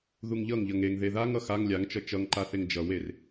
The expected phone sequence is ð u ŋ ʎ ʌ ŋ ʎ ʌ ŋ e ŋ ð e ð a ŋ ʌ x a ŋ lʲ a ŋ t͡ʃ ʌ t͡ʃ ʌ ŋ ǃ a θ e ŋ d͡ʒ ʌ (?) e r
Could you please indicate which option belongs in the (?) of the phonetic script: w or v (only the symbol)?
w